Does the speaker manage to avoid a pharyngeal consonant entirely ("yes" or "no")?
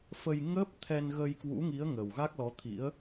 yes